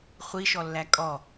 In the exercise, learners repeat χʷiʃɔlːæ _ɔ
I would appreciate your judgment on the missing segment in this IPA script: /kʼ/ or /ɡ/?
kʼ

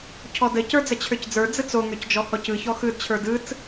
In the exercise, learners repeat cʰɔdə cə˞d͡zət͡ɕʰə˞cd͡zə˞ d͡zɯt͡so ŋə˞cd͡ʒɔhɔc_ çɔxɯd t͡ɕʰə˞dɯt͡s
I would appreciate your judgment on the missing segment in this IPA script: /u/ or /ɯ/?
ɯ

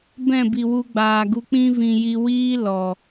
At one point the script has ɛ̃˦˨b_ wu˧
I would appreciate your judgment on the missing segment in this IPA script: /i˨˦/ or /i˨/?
i˨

